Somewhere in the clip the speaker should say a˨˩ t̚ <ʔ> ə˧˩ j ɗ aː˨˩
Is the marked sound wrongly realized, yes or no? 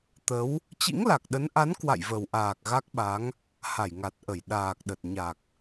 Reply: no